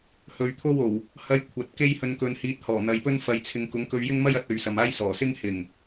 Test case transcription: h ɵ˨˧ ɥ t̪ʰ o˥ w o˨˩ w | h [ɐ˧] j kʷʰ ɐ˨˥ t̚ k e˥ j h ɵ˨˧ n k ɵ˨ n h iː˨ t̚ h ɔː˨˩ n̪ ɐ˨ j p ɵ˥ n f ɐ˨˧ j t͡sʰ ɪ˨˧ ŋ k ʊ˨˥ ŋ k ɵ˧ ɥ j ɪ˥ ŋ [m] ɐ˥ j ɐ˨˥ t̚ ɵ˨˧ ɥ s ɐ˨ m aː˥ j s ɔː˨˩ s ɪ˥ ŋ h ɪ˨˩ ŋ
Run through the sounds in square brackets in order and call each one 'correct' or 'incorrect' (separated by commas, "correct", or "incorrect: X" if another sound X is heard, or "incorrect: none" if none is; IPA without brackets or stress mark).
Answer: correct, correct